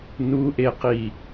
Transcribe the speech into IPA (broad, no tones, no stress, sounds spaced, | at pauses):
n u ʔ e q i